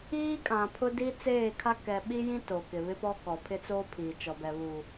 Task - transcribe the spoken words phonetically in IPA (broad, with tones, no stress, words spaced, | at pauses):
iː˦kʼã˨pʰʊ˦di˦ t͡seː˦˨kʰa˦ kɛ˨ ɓi˦jĩ˦ to˨kɪ˨ βɪ˦pɔ˦ kɔ˨pʰɪ˦t͡soː˦ pʰiː˨t͡ʃɔ˨bɛ˨ βu˨